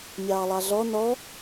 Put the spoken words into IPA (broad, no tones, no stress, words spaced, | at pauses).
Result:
mʲɑːlˠɑɮɔ nɔ